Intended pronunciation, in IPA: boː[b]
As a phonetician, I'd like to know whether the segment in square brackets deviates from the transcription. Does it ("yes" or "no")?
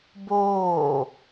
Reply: yes